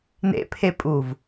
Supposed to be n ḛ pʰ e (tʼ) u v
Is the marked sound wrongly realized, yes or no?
yes